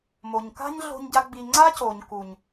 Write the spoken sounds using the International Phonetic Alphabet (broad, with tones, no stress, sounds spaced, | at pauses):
m o˨ ɲ k a̤˦ ɲ ɮ o̤˦ ɲ ɟ a˦ ɡ͡b i˧ ŋ͡ǀ a˦ c o˨ ɲ k u˨ ɲ